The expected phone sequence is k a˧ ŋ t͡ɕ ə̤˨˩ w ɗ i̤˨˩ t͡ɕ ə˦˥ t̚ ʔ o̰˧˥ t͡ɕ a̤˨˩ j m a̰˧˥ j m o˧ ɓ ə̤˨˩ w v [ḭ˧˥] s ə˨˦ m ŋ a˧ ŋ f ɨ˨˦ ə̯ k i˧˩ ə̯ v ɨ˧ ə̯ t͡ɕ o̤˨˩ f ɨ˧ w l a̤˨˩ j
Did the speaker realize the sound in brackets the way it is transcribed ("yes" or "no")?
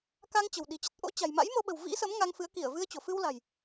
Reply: yes